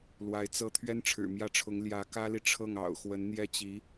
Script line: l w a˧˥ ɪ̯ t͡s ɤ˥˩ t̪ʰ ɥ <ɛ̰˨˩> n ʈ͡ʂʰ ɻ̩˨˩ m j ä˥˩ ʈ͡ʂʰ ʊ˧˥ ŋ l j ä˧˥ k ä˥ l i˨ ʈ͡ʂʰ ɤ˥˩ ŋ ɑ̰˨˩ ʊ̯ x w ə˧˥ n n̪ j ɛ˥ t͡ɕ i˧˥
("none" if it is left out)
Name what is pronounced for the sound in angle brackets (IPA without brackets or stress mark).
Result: ɛ˥